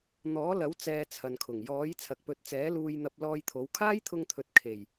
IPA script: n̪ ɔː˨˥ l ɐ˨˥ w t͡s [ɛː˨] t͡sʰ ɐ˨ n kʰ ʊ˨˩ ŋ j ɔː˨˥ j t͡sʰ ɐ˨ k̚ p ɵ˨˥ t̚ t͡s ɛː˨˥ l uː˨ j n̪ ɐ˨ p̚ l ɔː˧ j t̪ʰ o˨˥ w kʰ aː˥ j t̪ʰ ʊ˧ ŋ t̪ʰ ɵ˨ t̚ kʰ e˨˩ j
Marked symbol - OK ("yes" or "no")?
no